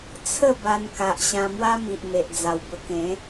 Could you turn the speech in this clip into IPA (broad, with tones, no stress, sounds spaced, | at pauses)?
t͡sʰ ə˥˧ b a˧ n k a˨ ʔ ɕ ã˧ m w a˦ m i˨ ʔ m e˨ ʔ d͡z a˨˩ w b ə˧ k ẽ˨˦